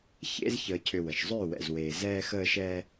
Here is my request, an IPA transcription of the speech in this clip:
çḛ˦z çəː˧cʰʏ˧wə˨ʃ zˤʏː˦˨wɛ̰˨zweː˨ zɛː˦xəː˦ʃɛː˦

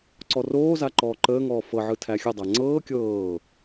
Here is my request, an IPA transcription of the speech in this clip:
ǀɔroːza ǃɔːǃəːŋɔː fɤʕɯ tʰæxʲədˤæ ŋ͡ǀɤː kʲɤː

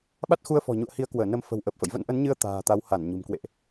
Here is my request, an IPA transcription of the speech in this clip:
ɓa˦˥t̚xu˧ə̯fɔ̤˨˩ ɲṵ˧˨ə̯hi˨˦ə̯kwəː˧˩nə˨˦m fə̤˨˩wʔəː˨˩p̚fə̰˧˨j və̰˧˥nʔə˨˦nɲɨ˧ə̯ t̪a̤ː˨˩ t̪a˨˦wha˧˩n ɲṳ˨˩mkwḛ˧˨ʔ

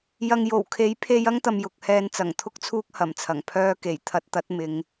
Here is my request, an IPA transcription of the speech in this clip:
jɐ˧ŋ jo˨˩wkʰe˨˥jpʰe˧j ɐ˥ŋt̪ɐ˨mjʊ˨k̚ hɛː˧nt͡sɐ˨˩ŋt̪ʰʊ˥k̚t͡sʰuː˥k̚ hɐ˨˩mt͡sʰɐ˨˩ŋ pʰœː˧ ke˨˩jt̪ʰɐ˧t̚t̪ɐ˨˥t̚ mɪ˨˧ŋ

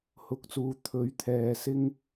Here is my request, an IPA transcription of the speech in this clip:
hʊ˨˥k̚t͡suː˨ t̪ʰɵ˨˥ɥt̪ʰɛː˨ sɪ˧ŋ

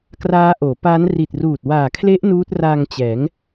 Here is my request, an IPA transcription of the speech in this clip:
kraː˦˥ʔoː˩˦pa˦˥n ri˨˩t̚ruː˨˩t̚ waː˨˩kʰle˦˥ʔ nuː˦˥t̚raː˧ŋt͡ɕɛː˩˦ŋ

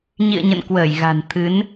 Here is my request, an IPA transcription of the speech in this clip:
ɲḭ˧˨ə̯ ɲə̰˧˨nkwəː˧˩jɣa̤˨˩n t̪ʰɨ˨˦n

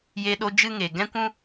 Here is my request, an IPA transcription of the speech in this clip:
je˧ɗo˧ d͡ʒɨ˦ŋe˨ ɡɛ̃˦kʷũ˦

